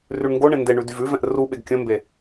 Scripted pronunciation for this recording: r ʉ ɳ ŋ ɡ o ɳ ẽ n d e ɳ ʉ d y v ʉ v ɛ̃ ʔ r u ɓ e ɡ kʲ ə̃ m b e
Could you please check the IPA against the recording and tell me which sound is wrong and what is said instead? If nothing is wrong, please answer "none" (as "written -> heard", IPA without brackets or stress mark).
none